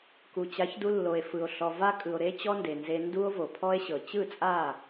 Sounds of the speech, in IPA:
ku˨t͡ɕa˨˦çdu˧ lːo˨e̯fɯ˨o̯ ɬɔ˨va˦kʼɯ˨o̯ ɾe˦t͡ɕɔ˦nde˨nze˧ ndu˦o̯vo˨pʰɔ˦e̯ ɕɤ˨ t͡ɕɯ˦˨t͡sʼa˦˨

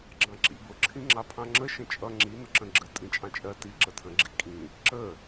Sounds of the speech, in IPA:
ɡ͡ǁɑ̃ǁḭbʊ ǁʰĩŋ͡ǁɑpʰɑ̃ŋ͡ǁə ʃə̃t͡ʃʼʌ ŋ͡ǁi nʊǁə̃ɡ͡ǁə tʼĩt͡ʃʼɑ̃t͡ʃʼɜ ti ǁətʰə̃ ɡ͡ǁikʼĩ | ǁə

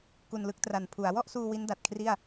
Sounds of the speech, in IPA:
ku˧nlɯ˦˥k̚tra˨˩n pʰu˩˦a̯ wɔ˥˩ʔsuː˧ wi˦˥nda˨˩t̚ kʰri˥˩a̯

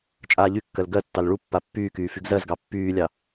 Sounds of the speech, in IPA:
t͡ʃʼaːʎykːɜl ɡɜtːɑl ɭupːa pːyːkyː fyɡzɜzɡɑ pːyːlʲɑ

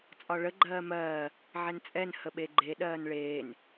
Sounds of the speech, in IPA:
t͡sʼɒɭə ɡ͡ǃɜːmɜː | ʕɛnt͡sʼɛn həɓeɡ͡ǃe ɗɜːnɭeːn

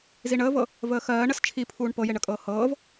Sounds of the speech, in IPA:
ziɳəːvɤ | vəːxɜː ɳəst͡ʃʰipʰuːɳ pɤjeɳəkʼɤː hɤːv

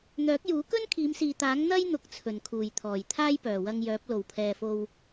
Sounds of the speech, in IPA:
n̪œː˨˥k̚juː˨˥kɵ˥n kʰiː˨˧msiː˨t̪aː˨˥ŋ n̪ɐ˥j n̪ʊ˧k̚t͡sʰɵ˨˩nkʰuː˨˩jt̪ʰɔː˨˩j t̪ʰaː˥jpœː˨˩wɐ˧ŋjœː˨˥p̚ lo˨˩wpʰɛː˨fo˧w

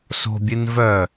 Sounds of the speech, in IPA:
so̤bʲɨn vœ

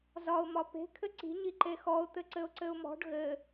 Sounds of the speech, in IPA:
zɒʊ̯ mɒpe̤ kʰɘǀi̤ɲi ǃexɔʊ̯t̪ɘ ǀɘʊ̯ǀɘʊ̯mɔ̤ɖ ɣɘ

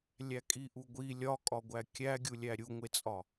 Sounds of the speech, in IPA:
lʲækʼiʔuɡʷi lʲɒkʼɒɡʷæ kʲæɡʲulʲæ ɾʲuŋʷet͡sʼɒ

